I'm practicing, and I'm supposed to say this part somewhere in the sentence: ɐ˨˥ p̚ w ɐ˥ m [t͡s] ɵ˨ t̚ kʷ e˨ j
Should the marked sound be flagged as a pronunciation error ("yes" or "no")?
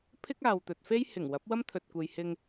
yes